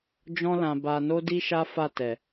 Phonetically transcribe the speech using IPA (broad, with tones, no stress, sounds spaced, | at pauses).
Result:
d͡ʒ ɔ̃˦ l ã˧ b a˧ n o˦ d i˦ ʃ a˦ f a˦˨ t ɛ˨